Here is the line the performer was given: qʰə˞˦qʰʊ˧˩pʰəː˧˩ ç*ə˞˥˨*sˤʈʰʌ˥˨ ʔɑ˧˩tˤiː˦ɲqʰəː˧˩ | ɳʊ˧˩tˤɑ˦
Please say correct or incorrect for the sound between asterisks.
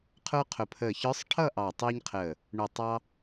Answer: incorrect